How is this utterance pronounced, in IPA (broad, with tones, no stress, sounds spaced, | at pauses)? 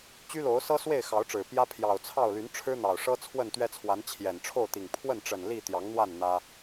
t͡ɕ y˦ l o˨˦ ʊ̯ s ɤ˦ s w e˥˨ ɪ̯ x ɑ˨˦ ʊ̯ ʈ͡ʂ ɻ̩˨˩ p j ä˦ pʰ j ɑ˨˩ ʊ̯ t͡sʰ ɑ˥˨ ʊ̯ l y˨˦ n ʈ͡ʂʰ ɻ̩˦ n̪ ɑ˨˩ ʊ̯ ʂ ɤ˦ t͡sʰ w ə˥˨ n t̪ ɥ ɛ˦ t͡sʰ w a˨˦ n t͡ɕʰ j ɛ˨˩ n ʈ͡ʂʰ o˥˨ ʊ̯ t̪ i˨˩ ŋ pʰ w ə˥˨ n ʈ͡ʂ ə˨˩ n l i˥˨ t̪ j ɑ˨˦ ŋ n̪ w a˥˨ n n̪ ä˦